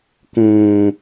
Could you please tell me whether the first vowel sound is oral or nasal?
nasal